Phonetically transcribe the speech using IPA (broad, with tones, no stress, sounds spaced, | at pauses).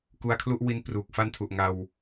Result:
k u˧ a̯ kʰ l u˥˩ ʔ w i˦˥ n p r uː˨˩ k̚ f a˥˩ n tʰ u˨˩ ʔ ŋ a˧ w